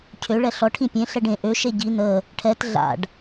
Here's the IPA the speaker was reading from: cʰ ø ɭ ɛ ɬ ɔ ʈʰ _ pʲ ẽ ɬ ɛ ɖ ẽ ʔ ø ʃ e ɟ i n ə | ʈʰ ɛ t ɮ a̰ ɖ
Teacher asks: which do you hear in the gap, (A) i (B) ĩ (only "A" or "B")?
B